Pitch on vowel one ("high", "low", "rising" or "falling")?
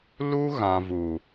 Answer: high